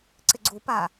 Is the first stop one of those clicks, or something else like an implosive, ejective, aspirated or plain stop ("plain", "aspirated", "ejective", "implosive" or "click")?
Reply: click